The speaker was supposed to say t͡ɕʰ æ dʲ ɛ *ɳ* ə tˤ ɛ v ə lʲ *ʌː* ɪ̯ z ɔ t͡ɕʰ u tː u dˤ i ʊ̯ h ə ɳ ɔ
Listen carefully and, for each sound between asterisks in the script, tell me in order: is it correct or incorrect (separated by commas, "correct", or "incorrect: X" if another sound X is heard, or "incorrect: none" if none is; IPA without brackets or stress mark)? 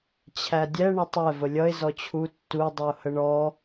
correct, incorrect: ʌ